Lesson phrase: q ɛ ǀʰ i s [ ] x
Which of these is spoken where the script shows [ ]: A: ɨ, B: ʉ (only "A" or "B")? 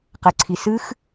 A